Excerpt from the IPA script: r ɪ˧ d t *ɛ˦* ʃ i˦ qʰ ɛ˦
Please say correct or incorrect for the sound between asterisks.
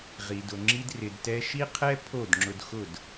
correct